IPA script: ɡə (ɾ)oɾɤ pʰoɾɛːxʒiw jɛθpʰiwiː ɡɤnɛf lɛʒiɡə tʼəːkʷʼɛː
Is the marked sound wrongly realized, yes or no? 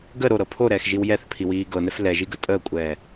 no